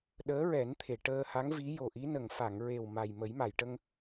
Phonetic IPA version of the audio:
ɗəː˧˥ɹɛ˨˩˦nt̪ʰe˨˩˨ ʈəː˧ha˧˥ŋvi˧˥ jo˨˩ʔi˧˥nə˨˩ŋ fa˨˩˨ŋɹe˨˩w ma˨˩jmə˨˩˦jma˨˩˨jʈə˧ŋ

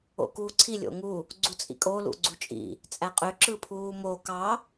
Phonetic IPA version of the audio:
o̰kuːǀʰi lʲo̰ŋu | ɡ͡ǀut͡sʼḭkʼo lṵɡ͡ǀut͡ʃʼḭ | t͡sʼæqʼø ǁɯpʰuːmo kɑ

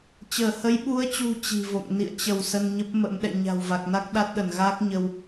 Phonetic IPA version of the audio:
t͡ɕəː˧˩hə˨˦jɓu˨˦ə̯t͡ɕṳ˨˩ t͡ɕi̤˨˩vo̰˧˨ŋ nḭ˧˨ə̯t͡ɕə˧˩w sə˧nɲə˦˥p̚mə̰˧˥m ɗɛ̰˧˨ ɲa̤˨˩wva˨˩k̚na˦˥k̚ ɗa˦˥t̚ɗə˧˩nɣaː˦˥k̚ ɲə˧w

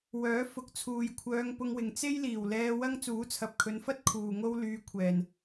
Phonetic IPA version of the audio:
wœː˨˥ fʊ˨k̚t͡sʰuː˨jkʷʰœː˧ŋ pʊ˧ŋwɪ˨ŋ t͡se˥jliː˨˩w lɛː˧ wɐ˥ŋ t͡suː˨˥t͡sʰɐ˨p̚kʰɵ˨˧nfɐ˥t̚ kʰuː˨ŋo˥w lyː˧kʷʰɛː˨˩n

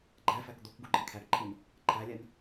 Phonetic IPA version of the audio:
ɡ͡ǃæfæk d̪okɡuɡ͡ǃe kʰæɡǃʰin | ǃʰælʲæn

